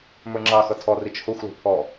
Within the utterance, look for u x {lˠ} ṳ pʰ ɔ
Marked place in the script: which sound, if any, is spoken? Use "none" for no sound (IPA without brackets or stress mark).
l